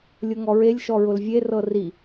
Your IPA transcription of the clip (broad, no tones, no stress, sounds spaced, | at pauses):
lʲ ʊ ŋ ɔ ɹ e lʲ ʃ ɔ ɹ ʊ l vʲ e r ɤ r i